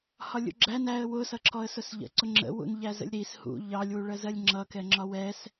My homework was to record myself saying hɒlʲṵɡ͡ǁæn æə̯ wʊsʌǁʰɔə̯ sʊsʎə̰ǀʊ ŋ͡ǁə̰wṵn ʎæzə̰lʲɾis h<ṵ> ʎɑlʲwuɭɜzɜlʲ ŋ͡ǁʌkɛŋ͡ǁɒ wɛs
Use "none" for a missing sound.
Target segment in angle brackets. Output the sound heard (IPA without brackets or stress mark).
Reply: ṵ